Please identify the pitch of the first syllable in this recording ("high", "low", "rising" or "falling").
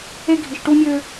high